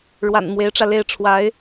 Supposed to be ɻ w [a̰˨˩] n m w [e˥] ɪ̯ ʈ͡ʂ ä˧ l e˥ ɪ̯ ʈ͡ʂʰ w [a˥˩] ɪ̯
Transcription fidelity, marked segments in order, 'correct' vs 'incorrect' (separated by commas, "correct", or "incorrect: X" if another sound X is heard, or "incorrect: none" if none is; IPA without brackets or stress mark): correct, incorrect: e˧˥, incorrect: a˧˥